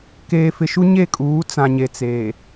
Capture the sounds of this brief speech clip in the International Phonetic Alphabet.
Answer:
keː˨fɪ˨ʃu˦ ɲe˦˨kʼuː˨˦ t͡sã˨ɲe˨ t͡se˨

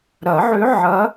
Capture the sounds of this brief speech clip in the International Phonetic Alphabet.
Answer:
ɾɐ˨˩˦ʕʏ˧˥ ʕɐ˧˥

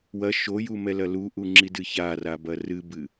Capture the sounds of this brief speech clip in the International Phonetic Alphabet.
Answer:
wɐ ʃojumɛ lɐluʔuŋ͡ǁi dɨçarabɐ rɨbɨ

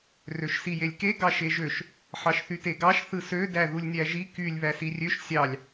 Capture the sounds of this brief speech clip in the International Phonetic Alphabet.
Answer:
røʃsijelʲke ɡɑʃeʒøʃ | ħɑʃθyteɡɑʃ θɯsø dæðulʲnʲæʒi kylʲ βæsirʲøʃ sʲɑlʲ

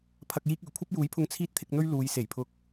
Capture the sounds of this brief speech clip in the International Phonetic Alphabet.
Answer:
pʰɐ˨k̚jiː˧k̚yː˨˩ kʷʰɐ˥p̚juː˨˥jpʰʊ˧ŋ t͡sʰiː˥t̚t̪ʰɪ˧k̚n̪ɵ˥ɥ luː˨˧jse˨˩jpʰʊ˧k̚

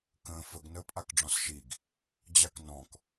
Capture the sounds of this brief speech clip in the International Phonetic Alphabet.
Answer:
kə̃ːfəɡ nəːpʼakɖ͡ʐɔ̃sʃiɡ | d͡ʑaknɔ̃k

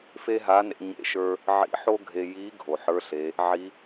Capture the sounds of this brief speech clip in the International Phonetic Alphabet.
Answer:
fe˥ɦa˧˥nḛ˧ ɲḛ˥ʃə˞˥ | ʕḭ˧˥ħo˥ɡʱe˧ji˧˥ ɡʱo˩ ħə˞˧˥ɬe˩˧ | ʕi˧˥

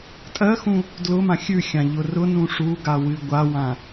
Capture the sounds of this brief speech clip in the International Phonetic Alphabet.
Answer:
tʼɜxũ | dlʊmã xʲʉxʲã ʎʊrʊnũ ʂuɡa wɨɡʷawã

